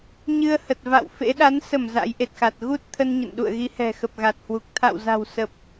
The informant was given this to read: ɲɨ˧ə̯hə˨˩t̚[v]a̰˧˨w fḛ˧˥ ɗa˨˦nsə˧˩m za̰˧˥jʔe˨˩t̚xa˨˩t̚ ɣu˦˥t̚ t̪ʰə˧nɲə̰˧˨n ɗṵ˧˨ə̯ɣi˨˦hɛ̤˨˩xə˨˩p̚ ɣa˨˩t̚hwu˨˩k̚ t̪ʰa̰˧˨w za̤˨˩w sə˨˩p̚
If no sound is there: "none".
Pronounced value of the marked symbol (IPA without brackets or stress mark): v